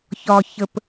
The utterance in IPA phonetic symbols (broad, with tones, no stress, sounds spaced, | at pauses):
ç ɒ˩ ç ə˩ p